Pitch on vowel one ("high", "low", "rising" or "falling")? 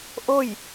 falling